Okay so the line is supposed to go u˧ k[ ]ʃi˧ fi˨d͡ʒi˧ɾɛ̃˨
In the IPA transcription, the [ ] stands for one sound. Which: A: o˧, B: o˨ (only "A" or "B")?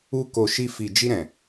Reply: B